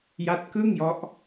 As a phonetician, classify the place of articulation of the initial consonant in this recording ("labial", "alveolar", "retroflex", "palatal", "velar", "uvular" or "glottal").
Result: palatal